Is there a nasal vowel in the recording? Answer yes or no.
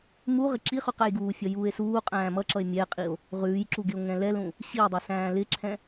yes